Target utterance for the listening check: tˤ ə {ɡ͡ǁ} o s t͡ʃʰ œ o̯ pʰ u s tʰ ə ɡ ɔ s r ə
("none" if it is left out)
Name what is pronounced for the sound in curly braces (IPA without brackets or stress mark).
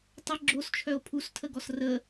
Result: ɡ͡ǁ